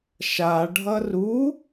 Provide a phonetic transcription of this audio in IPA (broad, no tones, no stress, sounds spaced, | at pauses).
ʃ a ɖʱ ʌ r u